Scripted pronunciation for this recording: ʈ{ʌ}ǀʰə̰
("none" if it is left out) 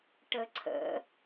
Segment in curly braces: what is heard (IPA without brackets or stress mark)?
ə